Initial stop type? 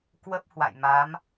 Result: plain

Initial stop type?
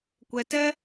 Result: plain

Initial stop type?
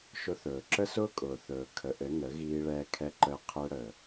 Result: click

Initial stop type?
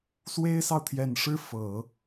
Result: aspirated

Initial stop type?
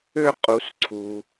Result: ejective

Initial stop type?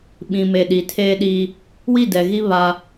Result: implosive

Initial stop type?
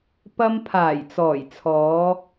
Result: plain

